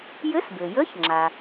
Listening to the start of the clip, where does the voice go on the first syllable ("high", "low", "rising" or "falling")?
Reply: rising